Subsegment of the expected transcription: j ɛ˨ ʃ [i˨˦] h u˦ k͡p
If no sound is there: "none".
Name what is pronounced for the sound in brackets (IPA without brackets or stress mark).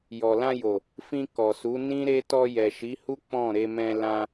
i˨˦